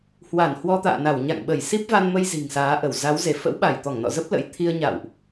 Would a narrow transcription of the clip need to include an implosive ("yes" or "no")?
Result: yes